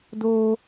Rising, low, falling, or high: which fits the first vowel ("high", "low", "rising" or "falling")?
high